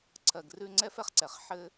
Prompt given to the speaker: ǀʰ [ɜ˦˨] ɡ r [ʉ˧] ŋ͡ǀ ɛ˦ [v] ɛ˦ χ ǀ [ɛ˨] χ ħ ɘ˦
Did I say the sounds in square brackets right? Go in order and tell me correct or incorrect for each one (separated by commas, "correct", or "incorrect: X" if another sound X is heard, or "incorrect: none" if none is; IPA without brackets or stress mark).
incorrect: ɜ˨, correct, incorrect: f, correct